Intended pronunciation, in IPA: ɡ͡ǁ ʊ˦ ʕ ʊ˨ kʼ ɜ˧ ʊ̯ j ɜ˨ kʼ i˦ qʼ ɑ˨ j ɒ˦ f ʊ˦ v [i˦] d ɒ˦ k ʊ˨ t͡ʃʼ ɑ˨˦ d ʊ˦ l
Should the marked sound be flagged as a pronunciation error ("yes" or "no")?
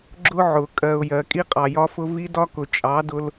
no